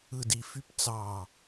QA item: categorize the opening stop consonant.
plain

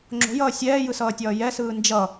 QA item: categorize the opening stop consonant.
click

